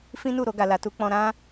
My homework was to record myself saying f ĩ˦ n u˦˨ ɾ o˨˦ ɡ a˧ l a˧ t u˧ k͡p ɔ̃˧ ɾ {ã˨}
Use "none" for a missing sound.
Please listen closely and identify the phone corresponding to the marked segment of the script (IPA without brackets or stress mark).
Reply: ã˦